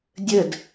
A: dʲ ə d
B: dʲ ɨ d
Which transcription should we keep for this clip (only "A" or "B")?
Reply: A